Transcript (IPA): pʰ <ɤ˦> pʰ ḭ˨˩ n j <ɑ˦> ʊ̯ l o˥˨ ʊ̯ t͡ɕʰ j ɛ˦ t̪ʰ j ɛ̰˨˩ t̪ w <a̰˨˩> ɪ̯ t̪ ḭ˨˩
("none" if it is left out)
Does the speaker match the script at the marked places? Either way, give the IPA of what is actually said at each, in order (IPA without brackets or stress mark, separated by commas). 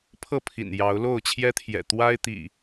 ɤ˥˨, ɑ˨˦, a˦